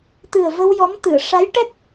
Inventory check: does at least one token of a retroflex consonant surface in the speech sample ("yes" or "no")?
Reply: yes